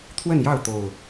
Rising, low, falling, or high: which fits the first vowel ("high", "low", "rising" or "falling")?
falling